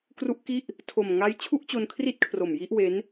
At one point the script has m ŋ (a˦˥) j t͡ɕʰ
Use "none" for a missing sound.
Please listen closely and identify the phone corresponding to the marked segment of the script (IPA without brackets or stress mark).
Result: a˦˥